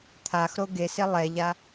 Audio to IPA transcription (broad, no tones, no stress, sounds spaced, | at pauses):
t̪ʰ a x ɾ o ɡ e s e lˠ ɛ ʎ a